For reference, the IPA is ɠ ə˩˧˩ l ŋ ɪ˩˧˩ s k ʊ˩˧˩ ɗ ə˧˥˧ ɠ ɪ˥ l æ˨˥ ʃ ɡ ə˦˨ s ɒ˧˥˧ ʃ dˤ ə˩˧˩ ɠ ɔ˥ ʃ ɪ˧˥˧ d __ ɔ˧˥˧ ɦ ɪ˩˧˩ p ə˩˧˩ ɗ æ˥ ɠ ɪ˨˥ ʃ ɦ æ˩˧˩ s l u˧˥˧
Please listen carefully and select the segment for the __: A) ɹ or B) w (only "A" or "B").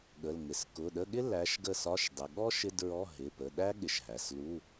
A